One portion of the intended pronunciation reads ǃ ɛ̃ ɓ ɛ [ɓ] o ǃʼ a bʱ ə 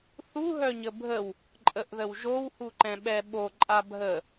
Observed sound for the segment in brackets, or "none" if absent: ɓ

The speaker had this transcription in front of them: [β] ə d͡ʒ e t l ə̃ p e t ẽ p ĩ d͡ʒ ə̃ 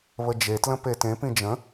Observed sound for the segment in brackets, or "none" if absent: β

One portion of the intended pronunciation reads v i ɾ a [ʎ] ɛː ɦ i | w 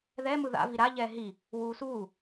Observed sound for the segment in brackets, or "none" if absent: ʎ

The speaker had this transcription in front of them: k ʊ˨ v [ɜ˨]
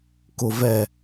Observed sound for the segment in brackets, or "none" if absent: ɛ˨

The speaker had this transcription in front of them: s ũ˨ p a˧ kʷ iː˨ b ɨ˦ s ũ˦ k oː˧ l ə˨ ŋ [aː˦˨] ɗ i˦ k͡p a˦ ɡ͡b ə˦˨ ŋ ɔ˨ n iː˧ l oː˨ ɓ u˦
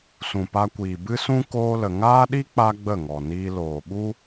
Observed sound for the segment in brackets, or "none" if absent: aː˦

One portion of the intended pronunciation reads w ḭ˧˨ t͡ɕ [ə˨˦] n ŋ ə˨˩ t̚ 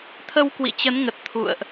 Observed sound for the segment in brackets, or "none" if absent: ə˨˦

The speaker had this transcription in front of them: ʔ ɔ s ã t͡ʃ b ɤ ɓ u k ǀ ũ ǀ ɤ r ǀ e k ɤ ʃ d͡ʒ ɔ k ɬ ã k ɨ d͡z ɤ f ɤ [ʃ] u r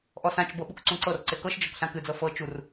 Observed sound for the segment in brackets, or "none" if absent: t͡ʃ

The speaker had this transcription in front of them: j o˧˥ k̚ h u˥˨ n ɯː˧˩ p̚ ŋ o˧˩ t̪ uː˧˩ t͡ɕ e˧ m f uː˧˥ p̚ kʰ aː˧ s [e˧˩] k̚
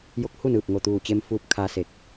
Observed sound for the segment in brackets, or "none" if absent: e˧˩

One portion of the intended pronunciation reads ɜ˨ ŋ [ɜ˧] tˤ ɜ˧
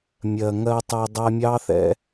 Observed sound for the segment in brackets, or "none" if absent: ɜ˧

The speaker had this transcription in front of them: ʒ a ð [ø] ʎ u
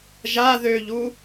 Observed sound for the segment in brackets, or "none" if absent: ø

